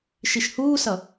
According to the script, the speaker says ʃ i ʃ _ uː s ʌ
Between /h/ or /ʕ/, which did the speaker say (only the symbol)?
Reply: h